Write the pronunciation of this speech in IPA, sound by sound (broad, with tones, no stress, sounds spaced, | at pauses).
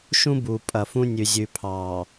ʃ ũ˦ b uː˨ pʼ ɐ˨ f ũ˦ nʲ ʉ˨ zʲ ʉ˨ pʰ ɑː˨